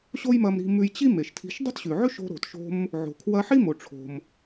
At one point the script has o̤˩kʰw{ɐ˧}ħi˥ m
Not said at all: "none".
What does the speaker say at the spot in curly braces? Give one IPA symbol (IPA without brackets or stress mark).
ɐ˧